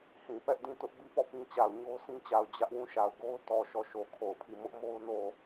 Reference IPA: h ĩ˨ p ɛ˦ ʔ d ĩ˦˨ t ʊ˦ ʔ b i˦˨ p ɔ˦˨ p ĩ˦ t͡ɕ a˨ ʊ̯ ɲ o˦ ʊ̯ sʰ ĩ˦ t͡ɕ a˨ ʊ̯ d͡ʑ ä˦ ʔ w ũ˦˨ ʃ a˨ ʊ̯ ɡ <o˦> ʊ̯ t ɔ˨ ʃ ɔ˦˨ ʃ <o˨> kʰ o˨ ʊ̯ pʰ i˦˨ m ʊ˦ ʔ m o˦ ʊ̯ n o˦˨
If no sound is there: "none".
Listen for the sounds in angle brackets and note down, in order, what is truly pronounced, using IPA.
o˦, o˨

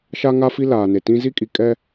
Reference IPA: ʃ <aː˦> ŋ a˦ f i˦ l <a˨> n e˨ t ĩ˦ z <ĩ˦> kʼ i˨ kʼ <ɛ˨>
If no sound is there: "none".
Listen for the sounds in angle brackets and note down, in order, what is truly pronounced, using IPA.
a˦, aː˨, i˦, ɛ˦

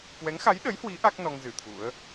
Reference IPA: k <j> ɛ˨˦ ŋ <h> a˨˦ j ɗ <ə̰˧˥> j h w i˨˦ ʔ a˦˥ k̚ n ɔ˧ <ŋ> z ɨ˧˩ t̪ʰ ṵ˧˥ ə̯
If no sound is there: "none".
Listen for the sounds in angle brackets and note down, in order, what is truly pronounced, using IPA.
w, x, ə˨˦, ŋ

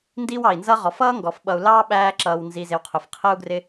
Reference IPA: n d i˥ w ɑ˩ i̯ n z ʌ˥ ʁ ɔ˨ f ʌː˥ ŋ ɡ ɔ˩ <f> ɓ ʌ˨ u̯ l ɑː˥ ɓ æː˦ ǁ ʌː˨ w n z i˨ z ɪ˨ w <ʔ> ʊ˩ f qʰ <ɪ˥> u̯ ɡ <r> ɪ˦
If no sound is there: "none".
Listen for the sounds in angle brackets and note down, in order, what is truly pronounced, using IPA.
f, qʰ, ə˥, r

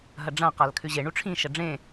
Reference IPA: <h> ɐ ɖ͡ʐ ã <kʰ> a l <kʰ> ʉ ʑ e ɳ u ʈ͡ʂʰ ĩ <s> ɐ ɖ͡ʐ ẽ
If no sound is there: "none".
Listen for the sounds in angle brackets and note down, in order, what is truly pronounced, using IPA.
ɦ, q, kʰ, ʃ

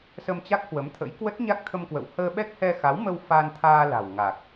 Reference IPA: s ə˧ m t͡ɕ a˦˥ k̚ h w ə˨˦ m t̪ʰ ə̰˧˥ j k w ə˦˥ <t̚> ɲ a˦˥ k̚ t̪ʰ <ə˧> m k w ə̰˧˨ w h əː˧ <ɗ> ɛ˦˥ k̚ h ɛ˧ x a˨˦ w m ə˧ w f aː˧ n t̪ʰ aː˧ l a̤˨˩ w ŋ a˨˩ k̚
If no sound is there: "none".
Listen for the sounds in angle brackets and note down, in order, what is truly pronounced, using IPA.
t̚, ə˧, ɓ

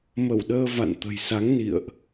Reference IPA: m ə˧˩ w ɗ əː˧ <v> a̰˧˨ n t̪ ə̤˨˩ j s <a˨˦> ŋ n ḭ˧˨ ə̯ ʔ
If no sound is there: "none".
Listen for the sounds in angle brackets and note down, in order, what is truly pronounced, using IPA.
v, a˨˦

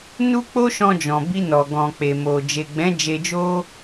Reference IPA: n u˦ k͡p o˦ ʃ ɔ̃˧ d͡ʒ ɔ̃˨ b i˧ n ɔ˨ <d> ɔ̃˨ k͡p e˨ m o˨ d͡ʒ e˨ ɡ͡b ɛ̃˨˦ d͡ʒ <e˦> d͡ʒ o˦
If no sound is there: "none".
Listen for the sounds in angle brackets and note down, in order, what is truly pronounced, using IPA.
ɡ, e˧

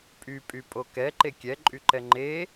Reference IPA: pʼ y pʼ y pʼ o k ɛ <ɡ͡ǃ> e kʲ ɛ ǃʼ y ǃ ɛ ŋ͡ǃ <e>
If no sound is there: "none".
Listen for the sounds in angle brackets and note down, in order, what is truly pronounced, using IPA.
ǃ, e

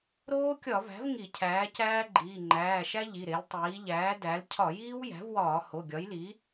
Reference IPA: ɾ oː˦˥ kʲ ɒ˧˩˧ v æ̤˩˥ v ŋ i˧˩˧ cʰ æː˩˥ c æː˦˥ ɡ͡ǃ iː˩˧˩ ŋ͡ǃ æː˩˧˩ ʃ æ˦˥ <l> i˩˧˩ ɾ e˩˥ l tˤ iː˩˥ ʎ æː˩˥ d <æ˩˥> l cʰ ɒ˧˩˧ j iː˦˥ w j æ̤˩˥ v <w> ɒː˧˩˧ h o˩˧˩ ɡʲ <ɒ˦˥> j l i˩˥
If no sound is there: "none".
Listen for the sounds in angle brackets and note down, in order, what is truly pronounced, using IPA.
ʎ, æ˩˥, w, ɒ˩˥

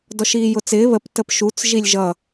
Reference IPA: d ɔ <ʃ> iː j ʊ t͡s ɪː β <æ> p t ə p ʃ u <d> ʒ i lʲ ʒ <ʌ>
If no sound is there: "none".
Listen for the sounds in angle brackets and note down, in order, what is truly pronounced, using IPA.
ʃ, ə, t͡s, ʌ

